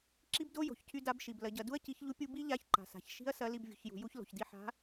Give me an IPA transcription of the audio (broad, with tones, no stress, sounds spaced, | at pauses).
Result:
ǁ i˥ b d o˥ j o̤˩ ç cʰ y˧ d a˧˥ b ʃ i˩ b l ɐ˩˧ ɟ ɐ˩˧ d u˥ ɐ̯ c i˧˥ ç ʎ u˥ pʲ u˥ b i˥ ʎ a˧˥ ç ǃ a̤˩ s a̤˩ ç ʃ i̤˥ ɐ̯ s ɐ˧˥ l i˧ b vʲ ṳ˩˧ ç j ṳ˩˧ j u˥ ç l o̤˩ ç d i˧ ħ a̤˧˥